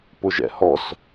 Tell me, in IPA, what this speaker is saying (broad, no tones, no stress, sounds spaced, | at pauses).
p ʊ ʒ ɛ̰ h ɔ s